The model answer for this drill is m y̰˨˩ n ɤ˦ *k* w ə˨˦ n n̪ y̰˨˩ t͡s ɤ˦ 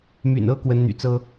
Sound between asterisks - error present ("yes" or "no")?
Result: no